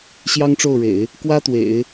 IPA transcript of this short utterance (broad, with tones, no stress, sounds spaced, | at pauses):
ɕ j ɑ˥ ŋ ʈ͡ʂ o˥˩ ʊ̯ ɻ ḛ˨˩˦ ɪ̯ | k w ä˥ t̪ w ḛ˨˩˦ ɪ̯